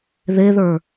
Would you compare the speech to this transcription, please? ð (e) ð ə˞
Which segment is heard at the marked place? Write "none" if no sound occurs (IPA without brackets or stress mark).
e